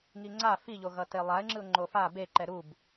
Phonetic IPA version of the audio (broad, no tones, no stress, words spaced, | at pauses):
ŋiŋ͡ǀa fiʎoɣʌ telˠaɪ̯ŋ͡ǁɯʊ̯ ŋ͡ǃofa beǃɛ ɾub